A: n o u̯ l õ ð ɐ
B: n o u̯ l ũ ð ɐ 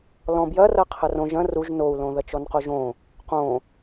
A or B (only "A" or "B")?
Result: A